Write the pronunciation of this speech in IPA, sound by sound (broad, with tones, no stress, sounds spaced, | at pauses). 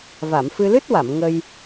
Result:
v a˨˩˨ m f ɨ˧ l ɨ˦˥ t̚ w a˨˩˨ m ŋ ə˧ j